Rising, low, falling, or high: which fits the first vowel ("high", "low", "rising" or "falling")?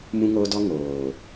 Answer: high